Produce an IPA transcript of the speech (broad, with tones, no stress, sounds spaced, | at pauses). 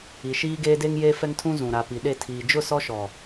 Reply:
i˨ ʃ iː˦ ɡ eː˦ d e˦ ŋ j eː˦ f ɛ˦ ŋ tʰ ũ˦ z ũ˨ ɾ a˨ p i˨ ɗ e˦˨ tʰ iː˨ d͡ʒ ʊ˦˨ s ɔ˦ ʃ ɔ˨